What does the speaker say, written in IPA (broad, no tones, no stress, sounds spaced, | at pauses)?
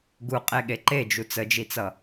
ɡ u qʼ e ɠ e ǃ e d͡ʒ u t͡s ə d͡ʒ i t͡s ʌ